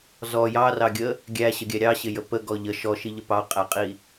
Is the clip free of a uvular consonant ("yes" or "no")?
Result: no